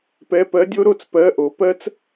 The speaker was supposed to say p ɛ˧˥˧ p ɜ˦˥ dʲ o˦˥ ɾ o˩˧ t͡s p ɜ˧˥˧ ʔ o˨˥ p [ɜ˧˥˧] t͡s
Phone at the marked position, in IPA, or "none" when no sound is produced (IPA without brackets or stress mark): ɜ˦˥